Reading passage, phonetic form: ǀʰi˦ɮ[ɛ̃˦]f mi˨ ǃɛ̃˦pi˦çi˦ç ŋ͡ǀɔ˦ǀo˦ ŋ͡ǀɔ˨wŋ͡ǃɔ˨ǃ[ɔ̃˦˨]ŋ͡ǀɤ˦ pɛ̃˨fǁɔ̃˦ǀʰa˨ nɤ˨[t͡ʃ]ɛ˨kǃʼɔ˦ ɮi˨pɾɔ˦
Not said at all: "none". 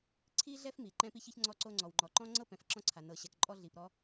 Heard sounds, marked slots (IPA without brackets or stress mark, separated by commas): ɛ˦, ɔ̃˦, ɕ